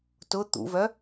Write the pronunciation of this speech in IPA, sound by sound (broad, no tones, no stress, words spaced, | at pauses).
tʊ t̪ṵvœ